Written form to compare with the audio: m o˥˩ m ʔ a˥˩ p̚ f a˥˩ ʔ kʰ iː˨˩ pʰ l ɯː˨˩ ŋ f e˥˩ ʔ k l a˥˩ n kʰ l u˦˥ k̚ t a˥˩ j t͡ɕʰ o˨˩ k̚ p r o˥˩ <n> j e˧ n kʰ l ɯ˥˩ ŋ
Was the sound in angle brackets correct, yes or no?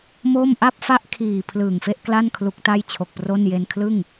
yes